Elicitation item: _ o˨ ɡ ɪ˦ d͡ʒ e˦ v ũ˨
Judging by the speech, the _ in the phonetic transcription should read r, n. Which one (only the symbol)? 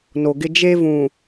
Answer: n